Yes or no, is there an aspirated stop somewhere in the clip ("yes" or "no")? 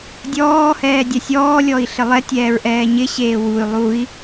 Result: no